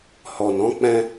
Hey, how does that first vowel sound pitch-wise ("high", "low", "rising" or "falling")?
low